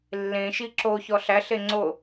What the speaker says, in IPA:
lː ẽ ʃ i ǁ o ç ɔ ɬ æ ɬ e ŋ͡ǀ o

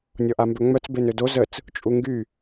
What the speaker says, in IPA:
nʲ ɔ ʔ a m b œ ŋ͡m œ t͡s b e n ø d o z ə t͡s | t͡ʃʼ u ŋ ɡ y

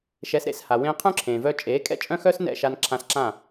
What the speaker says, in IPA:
ʃ ɛ˩˥ s ɾ ḛ˧ s h a˩ w ẽː˧ qʰ œ̃˥ ǁʰ ẽː˩ v œː˧ t͡ʃʼ eː˩˥ kʼ ɛ̰˥ t͡ʃʼ œ̃˥ x œː˥ s n ɛ̰˥˩ ʃ a˧ n ǁʰ ã˧ s ǁ ã˥˩

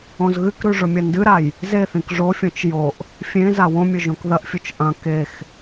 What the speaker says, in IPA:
õ z ɣ ɨ k ɾ ʉ ʐ ɵ mʲ ɐ n d ɨ ɾ a j | z e θ ĩ k ʐ o fʲ õ t͡ʃ j o ʔ | fʲ ẽ z a w õ mʲ ɵ ʒ õ k ð ɐ ʔ fʲ u t͡ʃ ʔ ɐ̃ k e x

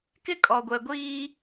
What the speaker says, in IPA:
k ɪ˦ kʼ ɔ˨ ɡʷ ɛ˨ ɡʷ iː˦

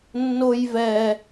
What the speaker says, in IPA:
nː o j v ɛ

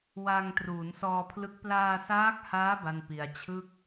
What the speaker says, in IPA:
w a˧ ŋ t r uː˩˦ n s ɔː˧ pʰ l ɯ˦˥ k̚ p l aː˧ s aː˦˥ k̚ h aː˦˥ b a˥˩ n p i˧ a̯ t͡ɕʰ ɯ˥˩ k̚

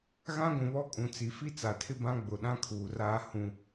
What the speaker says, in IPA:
ɣ ã˦ ɡʷ ũ˨ β ɔ˦ kʼ ũ˨ t͡s i˨ f i˦ t͡s a˨ tʰ ɪ˦ b ã˦ ɡ͡b ʊ˨ ɗ ã˦ kʰ uː˨ r aː˦ h ũ˦

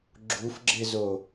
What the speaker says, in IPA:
ɡ͡ǁ u f ɡ͡ǁ ɪ z o

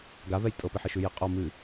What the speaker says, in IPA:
ɡ a v ɛ j tʼ ɤ p i ħ ɪ ʃ ʉ j ə qʼ ɔ m ɨ

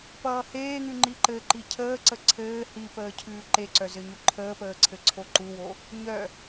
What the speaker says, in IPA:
p ʌː h eː ŋ ʉ ŋ͡ǃ i ǃ ɘ ǃ i cʰ əː ǀ ə ǀʰ ɘː h i p əː cʰ ʉː ǃ e ǀ œ z ɘ ɲ u ǃʰ əː p əː ǀʰ ɘ ǀʰ o ǃ u w o | ɲ œ

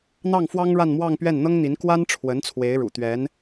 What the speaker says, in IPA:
n̪ ɑ˥˩ ŋ f w ɑ˥ ŋ ɻ a˥˧ n m w ɑ˥˧ ŋ p ɥ ɛ˥˩ n n̪ ɤ˥ ŋ n̪ i˧˥ n k w a˥ n ʈ͡ʂʰ w ə˧˥ n t͡sʰ w e˧˥ ɪ̯ ɻ ṵ˨˩ t̪ ɥ ɛ˧˥ n

